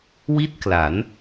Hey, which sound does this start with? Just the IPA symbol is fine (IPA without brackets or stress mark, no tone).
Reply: w